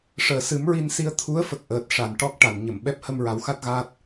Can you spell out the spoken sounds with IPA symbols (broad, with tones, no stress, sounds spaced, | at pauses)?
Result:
ʂ əː˨˩ s ɨ˨˩˦ m ɹ i˧ n s i˧ ə̯ t̪ʰ u˧˥ ə̯ f ə˨˩ k̚ ʔ əː˨˩ t̚ ʂ a˨˩˨ n ʈ ɔ˦˥ k̚ ʈ a˨˩˨ n ɲ ə˨˩˨ m ɓ ɛ˦˥ p̚ h ə˧ m ɹ a˨˩˦ w x a˦˥ t̚ ɣ aː˦˥ t̚